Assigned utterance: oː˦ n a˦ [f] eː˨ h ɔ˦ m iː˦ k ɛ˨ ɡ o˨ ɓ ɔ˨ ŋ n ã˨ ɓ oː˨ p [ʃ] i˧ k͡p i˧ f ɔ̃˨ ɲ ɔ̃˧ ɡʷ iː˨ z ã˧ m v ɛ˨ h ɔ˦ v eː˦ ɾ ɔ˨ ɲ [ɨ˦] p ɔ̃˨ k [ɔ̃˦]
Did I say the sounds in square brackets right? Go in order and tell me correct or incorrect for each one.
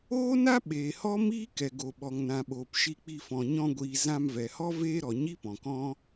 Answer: incorrect, correct, incorrect, correct

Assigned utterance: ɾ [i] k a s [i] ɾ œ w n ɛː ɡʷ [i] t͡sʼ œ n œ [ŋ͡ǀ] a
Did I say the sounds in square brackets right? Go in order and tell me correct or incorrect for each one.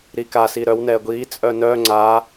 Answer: correct, correct, incorrect, correct

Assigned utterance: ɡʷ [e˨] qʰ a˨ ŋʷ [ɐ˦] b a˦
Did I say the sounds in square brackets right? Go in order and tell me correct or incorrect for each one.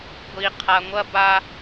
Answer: incorrect, correct

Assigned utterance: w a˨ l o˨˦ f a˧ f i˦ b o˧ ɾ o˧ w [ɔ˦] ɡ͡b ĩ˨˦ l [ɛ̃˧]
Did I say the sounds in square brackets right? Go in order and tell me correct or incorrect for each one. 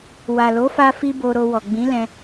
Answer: incorrect, correct

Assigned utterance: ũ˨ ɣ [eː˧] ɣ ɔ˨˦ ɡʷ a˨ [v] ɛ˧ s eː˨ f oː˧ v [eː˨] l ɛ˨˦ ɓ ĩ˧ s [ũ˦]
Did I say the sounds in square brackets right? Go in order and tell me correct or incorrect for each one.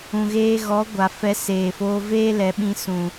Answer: correct, incorrect, incorrect, incorrect

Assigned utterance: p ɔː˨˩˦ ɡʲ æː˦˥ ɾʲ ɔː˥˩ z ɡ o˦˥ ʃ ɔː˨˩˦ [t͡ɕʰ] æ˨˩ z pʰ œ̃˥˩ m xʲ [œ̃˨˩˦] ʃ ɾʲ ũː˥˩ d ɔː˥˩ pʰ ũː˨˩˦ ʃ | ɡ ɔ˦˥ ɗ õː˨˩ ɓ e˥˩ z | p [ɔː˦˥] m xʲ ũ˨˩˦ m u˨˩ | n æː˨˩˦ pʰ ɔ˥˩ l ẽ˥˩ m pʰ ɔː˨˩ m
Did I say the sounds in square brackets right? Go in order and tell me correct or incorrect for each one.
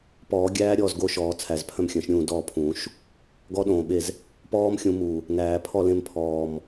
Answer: incorrect, correct, correct

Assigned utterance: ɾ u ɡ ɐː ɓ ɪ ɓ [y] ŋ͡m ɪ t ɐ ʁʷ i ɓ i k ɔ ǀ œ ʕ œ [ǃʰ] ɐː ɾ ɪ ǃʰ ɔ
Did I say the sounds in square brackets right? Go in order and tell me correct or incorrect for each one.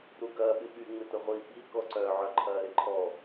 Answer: correct, correct

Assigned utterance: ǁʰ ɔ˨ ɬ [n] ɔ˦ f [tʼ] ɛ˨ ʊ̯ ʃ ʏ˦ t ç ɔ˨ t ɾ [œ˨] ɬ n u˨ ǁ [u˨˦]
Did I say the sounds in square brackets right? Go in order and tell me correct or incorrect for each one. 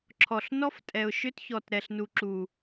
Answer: correct, correct, incorrect, incorrect

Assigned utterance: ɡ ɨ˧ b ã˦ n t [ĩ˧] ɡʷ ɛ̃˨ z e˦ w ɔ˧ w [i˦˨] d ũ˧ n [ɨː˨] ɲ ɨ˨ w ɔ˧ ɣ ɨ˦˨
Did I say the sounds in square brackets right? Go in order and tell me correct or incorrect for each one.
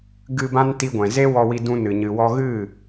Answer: incorrect, incorrect, incorrect

